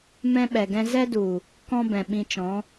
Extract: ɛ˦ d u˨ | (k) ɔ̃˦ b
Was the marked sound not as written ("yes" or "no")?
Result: no